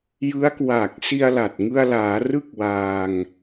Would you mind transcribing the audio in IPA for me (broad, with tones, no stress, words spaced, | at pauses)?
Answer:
jɯ˦˥a̯kwa˨˩k̚si˧a̯la˨˩t̚ ŋɯ˧a̯laː˩˦ rɯ˥˩k̚waː˧ŋ